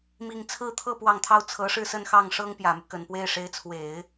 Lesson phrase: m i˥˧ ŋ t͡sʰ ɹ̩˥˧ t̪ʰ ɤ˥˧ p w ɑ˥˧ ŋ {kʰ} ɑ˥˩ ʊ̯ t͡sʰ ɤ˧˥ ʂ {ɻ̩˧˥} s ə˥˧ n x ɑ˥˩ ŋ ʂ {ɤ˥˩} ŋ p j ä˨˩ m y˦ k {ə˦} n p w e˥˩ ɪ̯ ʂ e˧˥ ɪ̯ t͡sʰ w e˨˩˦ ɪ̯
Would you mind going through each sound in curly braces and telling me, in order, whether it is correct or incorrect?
incorrect: t̪ʰ, incorrect: ɻ̩˥˧, incorrect: ɤ˥, incorrect: ə˨˩

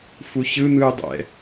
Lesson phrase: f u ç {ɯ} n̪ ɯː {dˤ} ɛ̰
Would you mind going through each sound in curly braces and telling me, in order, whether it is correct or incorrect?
correct, correct

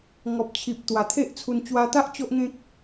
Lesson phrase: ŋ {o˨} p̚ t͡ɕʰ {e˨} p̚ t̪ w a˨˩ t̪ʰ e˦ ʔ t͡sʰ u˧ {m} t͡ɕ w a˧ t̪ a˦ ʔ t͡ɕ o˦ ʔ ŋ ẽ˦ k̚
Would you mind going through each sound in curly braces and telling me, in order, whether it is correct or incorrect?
incorrect: ɔ˨, incorrect: i˨, incorrect: n

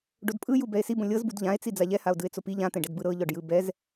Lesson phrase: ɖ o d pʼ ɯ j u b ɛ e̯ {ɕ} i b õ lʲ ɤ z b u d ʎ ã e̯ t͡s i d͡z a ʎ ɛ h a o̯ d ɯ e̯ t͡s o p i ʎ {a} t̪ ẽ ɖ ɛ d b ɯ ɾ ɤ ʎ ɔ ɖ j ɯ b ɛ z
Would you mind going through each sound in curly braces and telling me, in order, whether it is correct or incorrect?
incorrect: s, incorrect: ã

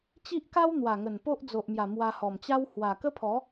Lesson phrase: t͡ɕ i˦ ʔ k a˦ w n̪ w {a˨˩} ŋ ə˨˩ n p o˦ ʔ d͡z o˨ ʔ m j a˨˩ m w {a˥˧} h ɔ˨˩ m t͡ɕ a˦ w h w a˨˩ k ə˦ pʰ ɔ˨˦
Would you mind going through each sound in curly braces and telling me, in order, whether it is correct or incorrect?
correct, incorrect: a˧

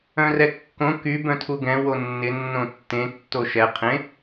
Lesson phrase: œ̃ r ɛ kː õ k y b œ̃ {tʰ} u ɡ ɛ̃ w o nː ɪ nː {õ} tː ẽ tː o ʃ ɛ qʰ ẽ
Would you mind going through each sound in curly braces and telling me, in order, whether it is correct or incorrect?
correct, correct

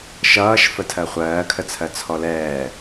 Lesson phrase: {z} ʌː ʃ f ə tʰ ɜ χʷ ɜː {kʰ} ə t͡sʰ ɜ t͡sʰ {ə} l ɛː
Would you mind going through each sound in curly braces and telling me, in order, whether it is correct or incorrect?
incorrect: ʃ, correct, incorrect: ɔ

